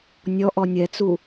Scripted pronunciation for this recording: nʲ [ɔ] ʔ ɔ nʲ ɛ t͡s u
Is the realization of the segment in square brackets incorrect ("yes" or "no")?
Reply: no